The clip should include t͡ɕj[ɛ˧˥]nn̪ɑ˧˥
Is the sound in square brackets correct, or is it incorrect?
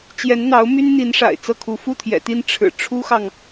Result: correct